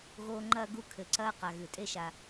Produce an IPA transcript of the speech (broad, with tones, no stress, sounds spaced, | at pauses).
ɣ oː˦ ŋ͡ǃ ɐː˥ ɡ u˦ kʰ ɘ˩ ǀ ɐː˦ q a˩ ɣ ɨ˩ tʼ e˦ ʃ a˨